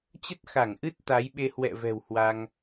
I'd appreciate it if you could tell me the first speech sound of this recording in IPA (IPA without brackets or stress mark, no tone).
t͡ɕ